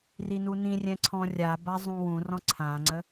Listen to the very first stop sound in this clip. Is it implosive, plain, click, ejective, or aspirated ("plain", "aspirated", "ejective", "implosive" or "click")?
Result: click